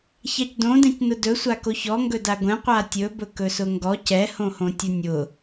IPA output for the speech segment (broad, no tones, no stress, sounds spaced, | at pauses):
ç a c d õ d ɛ̃ c n ʊ d ɵ sʷ a k o ç ɔ ŋ ɡ ɵ d a ɡʷ ɛ̃ qʷ a tʲ ɵ b ɵ k ɵ s ʊ ŋ ɡ ɔ c ɛ h õ h õ tʲ ʊ nʲ ʊ